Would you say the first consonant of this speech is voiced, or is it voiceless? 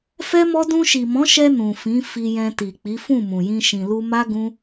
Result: voiceless